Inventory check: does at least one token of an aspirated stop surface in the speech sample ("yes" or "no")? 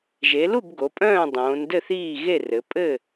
no